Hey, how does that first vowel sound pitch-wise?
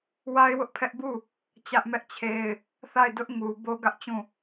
high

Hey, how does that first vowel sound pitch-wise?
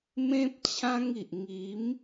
high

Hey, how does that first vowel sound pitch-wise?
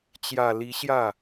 low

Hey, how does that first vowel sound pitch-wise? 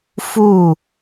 falling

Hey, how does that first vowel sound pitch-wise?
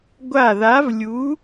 falling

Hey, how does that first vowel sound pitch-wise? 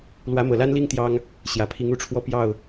rising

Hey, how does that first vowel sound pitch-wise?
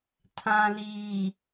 low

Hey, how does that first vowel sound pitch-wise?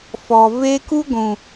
low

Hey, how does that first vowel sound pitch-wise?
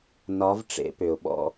rising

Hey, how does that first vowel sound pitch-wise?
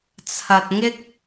low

